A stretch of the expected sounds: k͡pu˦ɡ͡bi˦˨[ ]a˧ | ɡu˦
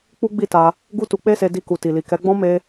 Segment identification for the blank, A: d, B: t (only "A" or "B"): B